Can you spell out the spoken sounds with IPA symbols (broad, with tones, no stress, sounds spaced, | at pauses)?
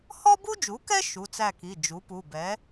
h ɔ˥ b u˥ d͡ʒ u˩˥ k ɛ˥ ʃ u˩˧˩ t͡s æ˦˨ k i˩˧˩ d͡ʒ u˩˥ p u˩˧˩ b ɛ˩˥